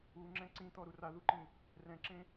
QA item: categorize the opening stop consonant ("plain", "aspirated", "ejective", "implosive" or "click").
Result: click